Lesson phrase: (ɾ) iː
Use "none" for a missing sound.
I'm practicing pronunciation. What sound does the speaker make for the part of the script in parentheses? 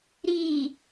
ɾ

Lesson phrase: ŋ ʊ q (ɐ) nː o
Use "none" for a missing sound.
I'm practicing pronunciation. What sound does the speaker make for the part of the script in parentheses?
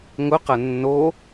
ɐ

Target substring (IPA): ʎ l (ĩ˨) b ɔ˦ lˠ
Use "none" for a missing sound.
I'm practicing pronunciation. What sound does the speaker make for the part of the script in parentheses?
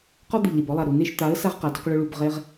i˨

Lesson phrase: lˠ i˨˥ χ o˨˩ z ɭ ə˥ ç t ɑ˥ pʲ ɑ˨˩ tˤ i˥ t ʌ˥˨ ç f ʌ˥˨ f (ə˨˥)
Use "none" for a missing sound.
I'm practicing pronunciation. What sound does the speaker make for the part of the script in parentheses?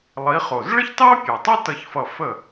ə˥˨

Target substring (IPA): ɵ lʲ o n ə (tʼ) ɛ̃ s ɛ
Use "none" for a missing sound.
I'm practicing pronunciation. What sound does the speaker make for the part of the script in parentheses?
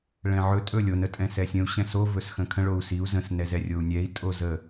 tʼ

